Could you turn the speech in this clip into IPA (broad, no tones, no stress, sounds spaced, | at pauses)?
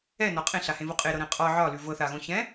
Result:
ɛ n ɒ qʼ ẽ ɬ a h ẽ v o qʼ e ɾ ɤ ɾ ɛ̃ qʼ ɒ ʕ ɒ l ʉ v ɤ θ a ɣ õ ç ɛ̃